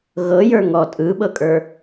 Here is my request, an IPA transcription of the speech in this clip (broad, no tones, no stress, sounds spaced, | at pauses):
ɣ ɤ j ə˞ ŋ ɔ tʼ ɯ ɓ ɤ kʼ ə˞